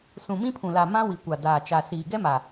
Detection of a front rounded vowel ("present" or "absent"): absent